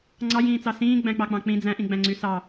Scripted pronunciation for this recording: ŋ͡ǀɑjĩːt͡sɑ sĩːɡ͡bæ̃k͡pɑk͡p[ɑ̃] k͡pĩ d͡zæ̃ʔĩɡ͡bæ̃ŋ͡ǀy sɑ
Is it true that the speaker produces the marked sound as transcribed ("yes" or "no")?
yes